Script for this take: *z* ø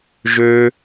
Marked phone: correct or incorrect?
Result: incorrect